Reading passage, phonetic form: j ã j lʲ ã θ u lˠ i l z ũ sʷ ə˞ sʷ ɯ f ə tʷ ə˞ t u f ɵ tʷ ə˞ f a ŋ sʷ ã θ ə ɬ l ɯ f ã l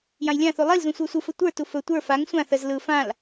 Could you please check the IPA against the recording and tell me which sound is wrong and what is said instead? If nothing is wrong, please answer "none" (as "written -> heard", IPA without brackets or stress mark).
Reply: ɬ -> z